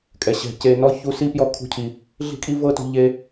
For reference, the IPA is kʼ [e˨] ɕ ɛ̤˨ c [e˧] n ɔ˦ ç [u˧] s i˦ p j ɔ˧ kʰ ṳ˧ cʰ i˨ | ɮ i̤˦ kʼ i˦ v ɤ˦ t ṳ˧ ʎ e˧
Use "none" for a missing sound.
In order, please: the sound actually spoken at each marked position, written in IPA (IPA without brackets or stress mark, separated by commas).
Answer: ɛ˨, e˧, u˧